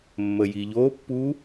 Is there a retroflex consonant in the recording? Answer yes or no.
no